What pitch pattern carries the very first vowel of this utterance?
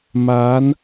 rising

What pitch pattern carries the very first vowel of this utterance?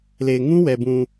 low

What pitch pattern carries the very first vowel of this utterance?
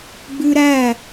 high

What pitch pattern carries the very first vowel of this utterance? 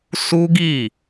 high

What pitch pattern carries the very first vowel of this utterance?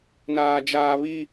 high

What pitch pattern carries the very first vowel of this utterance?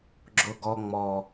high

